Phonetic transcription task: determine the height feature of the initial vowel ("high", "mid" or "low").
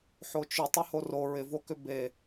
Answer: mid